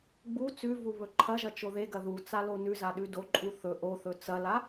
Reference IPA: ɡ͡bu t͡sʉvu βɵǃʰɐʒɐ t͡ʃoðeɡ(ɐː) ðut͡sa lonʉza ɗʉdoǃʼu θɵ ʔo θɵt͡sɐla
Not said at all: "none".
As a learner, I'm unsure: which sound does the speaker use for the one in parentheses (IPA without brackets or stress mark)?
ɐ